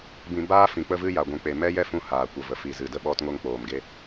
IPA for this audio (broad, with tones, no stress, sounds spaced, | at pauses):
b ĩ˧ b aː˦ f ĩ˨ k͡p ə˧ v ɨ˧ j a˨ ɡʷ ũ˨ k͡p e˨ m ɛ˦ j ɛ˦ f ũ˧ h aː˨ kʷ ə˨ v ə˨ f i˨ z ɨ˨ d ə˧ ɓ ɔ˧ t ŋ o˧ ŋ k͡p oː˨ m ɡ e˧